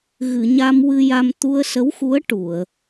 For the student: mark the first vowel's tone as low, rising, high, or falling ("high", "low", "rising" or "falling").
low